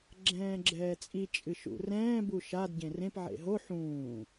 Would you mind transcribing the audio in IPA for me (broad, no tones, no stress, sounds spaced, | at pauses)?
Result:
ɡ͡ǁ ɛ̃ː ɡ͡ǁ ɛː t͡sʼ i t͡ʃʼ ɨ ʃ ṵ r ɛ̃ː b u ʃ a d ɟ ẽ r ẽ p ʕ ḛ ɦ o ħ ũː